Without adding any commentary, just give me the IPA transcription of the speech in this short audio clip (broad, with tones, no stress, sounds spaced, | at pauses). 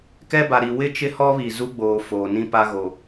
k ɛ˦ b a˨ ɾ i˨ w ɪ˦ t͡ʃ ɪ˦ h ɔ˦ β i˨ z u˦ ɡ͡b oː˨ f oː˨ n ĩ˦ p a˦ ɣ o˨